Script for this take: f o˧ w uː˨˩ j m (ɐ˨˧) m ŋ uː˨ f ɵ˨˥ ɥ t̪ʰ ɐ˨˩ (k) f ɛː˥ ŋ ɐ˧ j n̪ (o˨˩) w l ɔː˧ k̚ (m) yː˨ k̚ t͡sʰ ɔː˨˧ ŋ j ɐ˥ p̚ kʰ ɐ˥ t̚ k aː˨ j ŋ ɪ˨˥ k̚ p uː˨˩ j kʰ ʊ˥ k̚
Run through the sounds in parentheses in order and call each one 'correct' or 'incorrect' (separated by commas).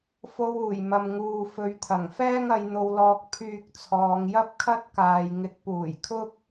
incorrect, incorrect, incorrect, incorrect